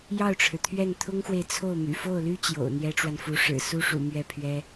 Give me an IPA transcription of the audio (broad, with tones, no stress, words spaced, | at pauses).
jɑ˥˩ʊ̯ʈ͡ʂʰɻ̩˩t̪ʰɥɛ˥˩n t̪ʰʊ˥ŋxwe˨ɪ̯ t͡sʰo˥˩ʊ̯ my̰˨˩fo˥˩ʊ̯ly˥ t͡ɕjo̰˨˩ʊ̯n̪jɛ˥ʈ͡ʂwa˨nfu˧˥ ʂɻ̩˨˩su˥ʂṵ˨˩ mɥɛ˥˩pʰɥɛ˥